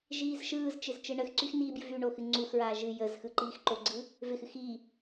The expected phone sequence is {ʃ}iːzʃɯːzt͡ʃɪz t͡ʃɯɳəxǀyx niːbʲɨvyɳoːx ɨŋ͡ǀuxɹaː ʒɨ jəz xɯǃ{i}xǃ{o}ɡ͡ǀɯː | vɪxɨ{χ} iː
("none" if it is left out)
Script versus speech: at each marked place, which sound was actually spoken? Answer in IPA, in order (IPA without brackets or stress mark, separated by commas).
ʒ, iː, o, x